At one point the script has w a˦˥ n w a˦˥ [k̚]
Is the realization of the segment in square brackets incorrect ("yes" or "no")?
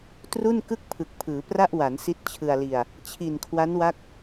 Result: no